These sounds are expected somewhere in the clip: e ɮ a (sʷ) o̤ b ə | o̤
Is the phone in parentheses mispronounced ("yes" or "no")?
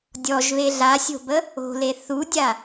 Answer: yes